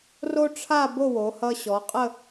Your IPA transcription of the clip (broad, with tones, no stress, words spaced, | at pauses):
ro˥ʈ͡ʂʰa˥˧ bo˥˧wo˩˧hʌ˧ ɕɔ˩˧qʼə˥˧